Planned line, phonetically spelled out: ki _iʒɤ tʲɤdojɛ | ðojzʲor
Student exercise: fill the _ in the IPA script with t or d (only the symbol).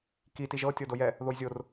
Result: t